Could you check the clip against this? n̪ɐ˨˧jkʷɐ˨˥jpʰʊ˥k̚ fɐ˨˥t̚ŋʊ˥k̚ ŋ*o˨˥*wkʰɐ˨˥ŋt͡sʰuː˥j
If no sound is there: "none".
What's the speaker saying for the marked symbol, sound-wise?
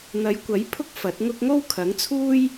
o˥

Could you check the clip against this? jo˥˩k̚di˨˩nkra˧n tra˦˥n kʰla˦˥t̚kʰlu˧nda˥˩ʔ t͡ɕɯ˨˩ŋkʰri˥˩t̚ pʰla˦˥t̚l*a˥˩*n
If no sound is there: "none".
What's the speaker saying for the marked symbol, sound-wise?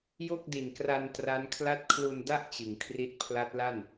a˥˩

